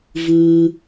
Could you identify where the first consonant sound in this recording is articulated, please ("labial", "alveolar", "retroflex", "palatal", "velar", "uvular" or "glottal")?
labial